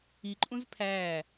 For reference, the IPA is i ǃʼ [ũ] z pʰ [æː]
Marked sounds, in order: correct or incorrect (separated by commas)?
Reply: correct, correct